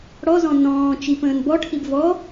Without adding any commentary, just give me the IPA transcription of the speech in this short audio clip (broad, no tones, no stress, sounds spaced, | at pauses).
ɽ ɔ z ɔ̃ n ɔ̃ː t͡ʃ i p ə̃ː n b ɔ ʈʰ i b v ɔ